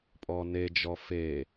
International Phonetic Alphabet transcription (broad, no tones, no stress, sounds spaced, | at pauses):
pʼ ɔ n e d͡ʒ ɔ f e